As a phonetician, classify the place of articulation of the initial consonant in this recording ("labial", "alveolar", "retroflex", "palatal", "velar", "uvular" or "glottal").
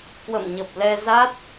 velar